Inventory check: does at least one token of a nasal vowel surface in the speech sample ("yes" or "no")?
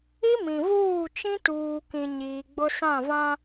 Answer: yes